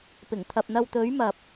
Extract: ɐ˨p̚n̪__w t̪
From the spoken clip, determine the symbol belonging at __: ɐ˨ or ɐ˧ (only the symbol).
ɐ˧